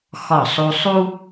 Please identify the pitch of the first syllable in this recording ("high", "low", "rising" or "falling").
falling